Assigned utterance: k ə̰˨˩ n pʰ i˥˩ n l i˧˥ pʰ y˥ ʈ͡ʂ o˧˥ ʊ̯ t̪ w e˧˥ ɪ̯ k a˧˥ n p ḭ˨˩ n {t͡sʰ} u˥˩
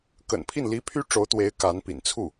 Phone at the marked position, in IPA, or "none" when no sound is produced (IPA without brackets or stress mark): t͡sʰ